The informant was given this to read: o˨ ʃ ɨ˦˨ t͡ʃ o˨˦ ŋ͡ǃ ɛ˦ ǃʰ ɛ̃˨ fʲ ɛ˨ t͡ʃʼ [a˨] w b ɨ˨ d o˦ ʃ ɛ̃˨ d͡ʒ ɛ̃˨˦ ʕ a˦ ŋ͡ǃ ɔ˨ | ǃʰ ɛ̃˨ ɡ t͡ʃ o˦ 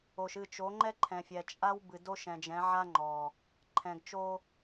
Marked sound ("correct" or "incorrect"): incorrect